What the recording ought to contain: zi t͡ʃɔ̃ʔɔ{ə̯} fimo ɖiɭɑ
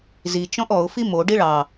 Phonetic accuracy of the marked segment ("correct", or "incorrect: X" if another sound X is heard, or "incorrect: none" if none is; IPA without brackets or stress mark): incorrect: ʊ̯